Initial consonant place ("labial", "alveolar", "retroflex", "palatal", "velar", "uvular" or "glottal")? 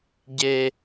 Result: palatal